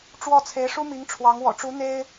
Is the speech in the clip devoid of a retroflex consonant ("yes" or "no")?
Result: no